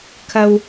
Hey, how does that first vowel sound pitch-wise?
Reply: high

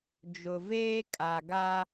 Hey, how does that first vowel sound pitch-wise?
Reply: low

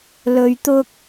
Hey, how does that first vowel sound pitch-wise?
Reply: low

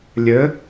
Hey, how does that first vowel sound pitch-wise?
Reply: rising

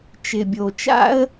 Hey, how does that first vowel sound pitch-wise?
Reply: low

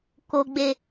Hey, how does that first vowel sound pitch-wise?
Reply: low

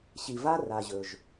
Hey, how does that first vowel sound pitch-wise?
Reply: low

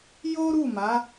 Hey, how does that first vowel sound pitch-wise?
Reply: high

